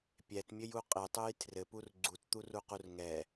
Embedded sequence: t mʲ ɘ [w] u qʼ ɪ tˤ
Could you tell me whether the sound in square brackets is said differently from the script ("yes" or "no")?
yes